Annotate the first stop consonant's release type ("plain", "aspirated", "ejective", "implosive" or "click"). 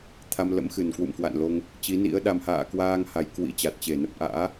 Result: aspirated